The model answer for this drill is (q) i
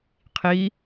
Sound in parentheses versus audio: incorrect: qʰ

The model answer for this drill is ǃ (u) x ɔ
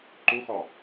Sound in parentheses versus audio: correct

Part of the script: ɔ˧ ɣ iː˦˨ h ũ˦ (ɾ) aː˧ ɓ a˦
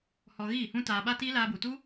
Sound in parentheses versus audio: incorrect: t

